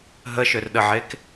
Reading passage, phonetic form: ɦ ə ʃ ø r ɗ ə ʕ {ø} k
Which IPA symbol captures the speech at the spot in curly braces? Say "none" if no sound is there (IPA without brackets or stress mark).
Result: e